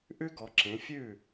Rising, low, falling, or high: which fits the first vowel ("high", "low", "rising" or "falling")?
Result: high